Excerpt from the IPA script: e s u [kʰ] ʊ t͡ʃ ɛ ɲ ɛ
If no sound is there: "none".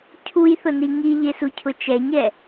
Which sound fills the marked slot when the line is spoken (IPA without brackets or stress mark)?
cʰ